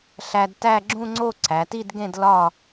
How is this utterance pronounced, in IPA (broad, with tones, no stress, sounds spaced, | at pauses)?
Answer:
ɬ æ˧ d t æ˥˧ ɡ͡ǁ ũ˥˧ ŋ͡ǀ o˥˧ ǀʰ æ˩˧ t i˥˧ d ɡ ẽ˥˧ d l ɒ˥˧